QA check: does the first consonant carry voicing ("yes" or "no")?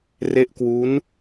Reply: yes